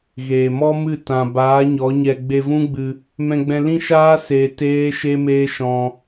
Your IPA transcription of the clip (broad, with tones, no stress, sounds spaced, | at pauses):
ɣ eː˨ m ɔ˦ m ɨ˦˨ t ã˨ b aː˨˦ ɲ ɔ˨˦ ɲ ɛ˧ ɡ͡b e˧ v ũ˦ ɡ͡b ɨ˧ | m ɛ̃˧ ɡ͡b ɛ̃˧ l ĩ˦ ʃ aː˦ s eː˧ t eː˦ ʃ e˦ m eː˦ ʃ ɔ̃˧